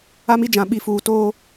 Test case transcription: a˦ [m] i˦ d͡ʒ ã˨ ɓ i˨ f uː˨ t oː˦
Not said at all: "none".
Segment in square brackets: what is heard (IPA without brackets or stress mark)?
m